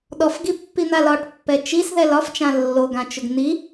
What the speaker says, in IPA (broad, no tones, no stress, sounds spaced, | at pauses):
ɗ ɔ f ɡ i pː i n̪ a l ɒ ʈ pː ɛ t͡ʃ i s ð ɛ l ɒ f t͡ʃ ã lː o ɡ ã t͡ʃ ʊ ɡ n̪ i